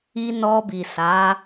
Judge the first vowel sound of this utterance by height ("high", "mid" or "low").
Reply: high